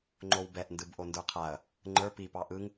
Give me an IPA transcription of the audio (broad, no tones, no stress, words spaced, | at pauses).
ŋ͡ǃowbɛʔ ndɯbʔondə˞qʰaɐ̯ | ŋ͡ǃə˞ pipɑ ʔɯŋ